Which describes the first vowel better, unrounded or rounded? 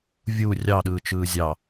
rounded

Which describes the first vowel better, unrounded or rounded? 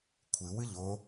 unrounded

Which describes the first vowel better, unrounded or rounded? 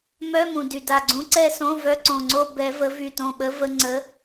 rounded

